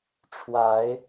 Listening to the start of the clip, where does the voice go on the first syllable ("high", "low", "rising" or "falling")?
rising